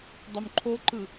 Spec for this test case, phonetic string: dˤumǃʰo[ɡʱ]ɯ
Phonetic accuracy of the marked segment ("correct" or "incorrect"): incorrect